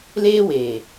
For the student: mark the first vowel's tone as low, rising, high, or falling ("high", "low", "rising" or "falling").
high